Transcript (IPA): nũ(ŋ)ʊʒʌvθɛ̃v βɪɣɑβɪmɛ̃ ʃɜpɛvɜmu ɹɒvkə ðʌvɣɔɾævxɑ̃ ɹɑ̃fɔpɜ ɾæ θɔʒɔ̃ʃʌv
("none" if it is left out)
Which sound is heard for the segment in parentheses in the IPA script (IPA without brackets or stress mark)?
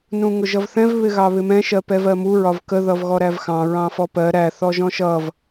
ŋ